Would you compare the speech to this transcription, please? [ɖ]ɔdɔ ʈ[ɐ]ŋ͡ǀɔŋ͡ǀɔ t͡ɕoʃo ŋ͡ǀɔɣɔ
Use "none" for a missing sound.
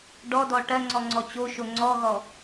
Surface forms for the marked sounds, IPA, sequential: ɖ, ɐ

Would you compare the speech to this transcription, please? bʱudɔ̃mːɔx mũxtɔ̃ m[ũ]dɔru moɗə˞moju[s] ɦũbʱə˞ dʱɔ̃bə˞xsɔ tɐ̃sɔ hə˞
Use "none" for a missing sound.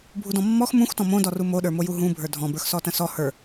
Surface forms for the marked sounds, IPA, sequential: õ, none

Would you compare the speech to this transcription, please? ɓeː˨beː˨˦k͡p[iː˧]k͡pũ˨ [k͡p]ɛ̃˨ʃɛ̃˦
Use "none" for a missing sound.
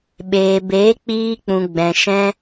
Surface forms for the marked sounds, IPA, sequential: iː˧, ɡ͡b

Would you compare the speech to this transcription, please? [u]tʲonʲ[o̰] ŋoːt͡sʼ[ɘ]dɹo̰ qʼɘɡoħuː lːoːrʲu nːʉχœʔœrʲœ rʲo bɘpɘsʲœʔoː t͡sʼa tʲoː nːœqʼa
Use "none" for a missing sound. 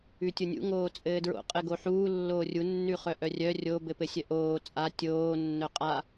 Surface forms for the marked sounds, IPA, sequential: ʉ, ṵ, ɘː

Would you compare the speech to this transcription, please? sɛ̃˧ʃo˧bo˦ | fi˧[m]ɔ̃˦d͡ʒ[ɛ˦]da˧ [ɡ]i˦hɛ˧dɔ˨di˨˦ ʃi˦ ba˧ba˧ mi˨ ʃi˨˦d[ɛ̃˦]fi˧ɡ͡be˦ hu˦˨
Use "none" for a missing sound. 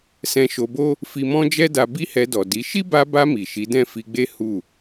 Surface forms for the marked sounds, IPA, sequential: m, ɛ˦, b, ɛ̃˦˨

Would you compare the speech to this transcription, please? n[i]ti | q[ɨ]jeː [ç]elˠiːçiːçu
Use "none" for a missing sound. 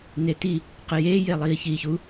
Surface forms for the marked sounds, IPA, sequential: e, ɨ, j

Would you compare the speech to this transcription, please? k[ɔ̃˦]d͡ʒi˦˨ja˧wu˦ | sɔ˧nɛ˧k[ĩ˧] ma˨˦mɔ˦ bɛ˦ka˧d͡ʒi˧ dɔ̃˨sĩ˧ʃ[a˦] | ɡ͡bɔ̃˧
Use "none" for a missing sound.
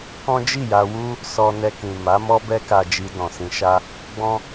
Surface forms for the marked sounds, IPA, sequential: ɔ̃˦, ĩ˨, a˦

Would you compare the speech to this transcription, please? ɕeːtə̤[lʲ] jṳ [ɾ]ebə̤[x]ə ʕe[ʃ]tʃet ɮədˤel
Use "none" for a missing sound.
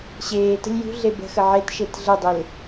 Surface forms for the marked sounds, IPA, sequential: lʲ, ɮ, x, none

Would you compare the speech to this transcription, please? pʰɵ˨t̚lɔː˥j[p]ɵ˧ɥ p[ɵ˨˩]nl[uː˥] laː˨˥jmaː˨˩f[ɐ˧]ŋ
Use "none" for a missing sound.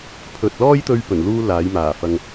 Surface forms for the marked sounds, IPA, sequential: t̪, ɵ˨˩, uː˥, ɐ˧

